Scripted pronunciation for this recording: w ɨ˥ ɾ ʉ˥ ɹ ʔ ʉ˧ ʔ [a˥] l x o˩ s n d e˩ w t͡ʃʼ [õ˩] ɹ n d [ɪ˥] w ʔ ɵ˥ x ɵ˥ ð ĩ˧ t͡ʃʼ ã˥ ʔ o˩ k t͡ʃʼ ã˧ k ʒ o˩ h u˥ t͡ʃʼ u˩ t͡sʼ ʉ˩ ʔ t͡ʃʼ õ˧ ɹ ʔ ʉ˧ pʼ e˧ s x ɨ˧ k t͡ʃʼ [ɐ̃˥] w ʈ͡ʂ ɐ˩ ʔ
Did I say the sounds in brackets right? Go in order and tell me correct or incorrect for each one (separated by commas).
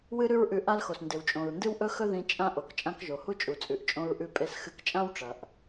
correct, correct, incorrect, incorrect